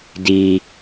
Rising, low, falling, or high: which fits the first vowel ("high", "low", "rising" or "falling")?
high